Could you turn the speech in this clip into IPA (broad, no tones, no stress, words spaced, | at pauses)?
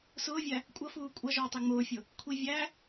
sʊːvʲæ | kʷʼʌfuː kʷʼʌʒʊːtˤi ŋ͡mʊːfʲʊ | kʷʰi vʲæ